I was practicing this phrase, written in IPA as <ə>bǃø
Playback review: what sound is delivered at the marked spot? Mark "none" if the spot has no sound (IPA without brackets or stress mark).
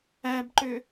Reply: æ